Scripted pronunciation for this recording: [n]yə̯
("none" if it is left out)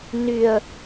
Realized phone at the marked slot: n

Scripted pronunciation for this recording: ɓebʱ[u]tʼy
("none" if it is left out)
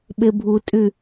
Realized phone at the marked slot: u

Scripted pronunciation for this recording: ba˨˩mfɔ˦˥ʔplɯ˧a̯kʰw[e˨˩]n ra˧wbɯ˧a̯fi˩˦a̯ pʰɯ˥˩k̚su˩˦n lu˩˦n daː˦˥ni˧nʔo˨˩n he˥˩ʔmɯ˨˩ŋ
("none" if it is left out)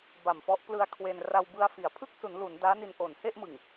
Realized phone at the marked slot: e˧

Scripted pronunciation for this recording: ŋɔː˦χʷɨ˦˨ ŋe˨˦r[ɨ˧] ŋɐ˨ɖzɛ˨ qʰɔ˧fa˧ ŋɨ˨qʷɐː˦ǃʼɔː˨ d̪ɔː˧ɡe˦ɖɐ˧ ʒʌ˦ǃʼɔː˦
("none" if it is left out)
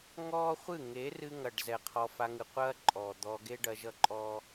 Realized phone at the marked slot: ɨ˧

